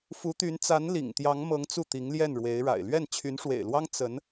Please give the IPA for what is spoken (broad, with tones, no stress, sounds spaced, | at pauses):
f u˧˥ t̪ y˧˥ n t͡s a˧˥ n l ḭ˨˩ ŋ t̪ j ɑ˧˥ ŋ m ɤ˧˥ ŋ t͡s u˥˩ t̪ i˧˥ ŋ l j ɛ˥˩ n ɻ w e˧˥ ɪ̯ ɻ a̰˨˩ ɪ̯ l ɥ ɛ˥˩ n t͡ɕʰ y˧˥ n ʂ w ḛ˨˩ ɪ̯ l w ɑ˥ ŋ t͡s ə˧˥ n